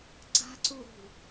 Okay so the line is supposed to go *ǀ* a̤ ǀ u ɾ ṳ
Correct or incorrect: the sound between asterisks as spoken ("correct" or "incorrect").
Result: correct